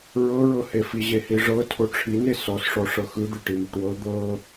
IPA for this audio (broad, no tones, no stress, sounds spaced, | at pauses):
ɹ ɤ ɹ ɤ h e f i ʑ e h i ʐ ɤ tʰ o ʈ͡ʂʰ i n e s ɔ s ʂ ɔ ʂ ɤ x ɯ d̪ e ʈ i m o ʈ w ɤ d̪ ɤ